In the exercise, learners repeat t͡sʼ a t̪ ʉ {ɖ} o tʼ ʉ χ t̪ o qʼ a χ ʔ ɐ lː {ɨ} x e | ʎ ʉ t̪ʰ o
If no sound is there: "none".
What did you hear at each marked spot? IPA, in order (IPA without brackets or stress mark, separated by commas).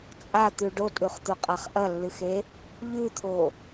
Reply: ɖ, ɨ